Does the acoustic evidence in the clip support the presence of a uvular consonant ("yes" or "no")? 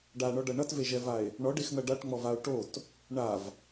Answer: no